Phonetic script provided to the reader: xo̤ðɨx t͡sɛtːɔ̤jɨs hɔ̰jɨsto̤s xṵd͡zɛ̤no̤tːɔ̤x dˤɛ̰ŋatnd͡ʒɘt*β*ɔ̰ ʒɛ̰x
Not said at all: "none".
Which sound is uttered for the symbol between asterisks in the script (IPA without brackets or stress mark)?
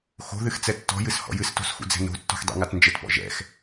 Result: p